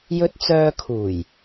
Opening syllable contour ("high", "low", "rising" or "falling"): high